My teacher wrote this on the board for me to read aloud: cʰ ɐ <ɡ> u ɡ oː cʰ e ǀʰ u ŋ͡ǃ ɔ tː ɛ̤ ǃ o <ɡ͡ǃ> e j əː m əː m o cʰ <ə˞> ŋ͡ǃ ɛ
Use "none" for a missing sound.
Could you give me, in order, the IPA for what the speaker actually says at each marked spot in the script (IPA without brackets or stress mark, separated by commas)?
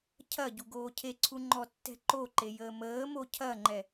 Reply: ɟ, ǃ, ɐ